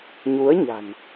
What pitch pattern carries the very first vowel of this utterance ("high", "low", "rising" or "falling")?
rising